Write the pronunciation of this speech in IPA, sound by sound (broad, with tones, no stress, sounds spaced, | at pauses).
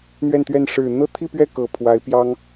n̪ ɥ ɛ˥˧ n t̪ ɥ ɛ˥˩ n ʂ ɻ̩˨˩ n̪ ɤ˥ t̪ʰ i˥˧ p ɥ ɛ˥˩ k ɤ˨˩ pʰ w a˧˥ ɪ̯ p j ɑ˥ ŋ